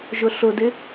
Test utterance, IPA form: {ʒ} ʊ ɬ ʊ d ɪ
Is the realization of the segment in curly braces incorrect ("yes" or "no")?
no